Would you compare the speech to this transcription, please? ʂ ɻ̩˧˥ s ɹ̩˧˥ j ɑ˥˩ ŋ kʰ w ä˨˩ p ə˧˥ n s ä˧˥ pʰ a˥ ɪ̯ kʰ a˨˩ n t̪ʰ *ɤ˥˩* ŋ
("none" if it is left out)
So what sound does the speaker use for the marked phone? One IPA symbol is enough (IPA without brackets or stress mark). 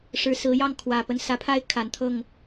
ɤ˥˩